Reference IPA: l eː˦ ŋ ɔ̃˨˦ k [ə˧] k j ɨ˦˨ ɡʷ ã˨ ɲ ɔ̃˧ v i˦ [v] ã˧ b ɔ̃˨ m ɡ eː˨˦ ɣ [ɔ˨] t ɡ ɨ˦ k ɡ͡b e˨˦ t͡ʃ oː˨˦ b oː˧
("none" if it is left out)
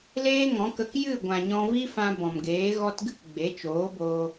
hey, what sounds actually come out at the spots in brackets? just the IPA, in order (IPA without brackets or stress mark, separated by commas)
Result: ə˧, f, ɔ˧